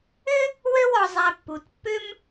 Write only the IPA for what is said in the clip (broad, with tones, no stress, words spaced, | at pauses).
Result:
ʏ˥ | wø˥wɔ˨ zˤɛ˨pːu˩tpːʏ˥m